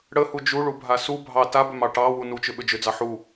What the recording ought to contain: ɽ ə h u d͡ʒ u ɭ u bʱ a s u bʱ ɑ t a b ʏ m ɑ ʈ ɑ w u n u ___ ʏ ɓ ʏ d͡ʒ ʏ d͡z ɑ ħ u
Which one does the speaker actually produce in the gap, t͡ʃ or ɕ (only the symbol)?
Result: t͡ʃ